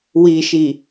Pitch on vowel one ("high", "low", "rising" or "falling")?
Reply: low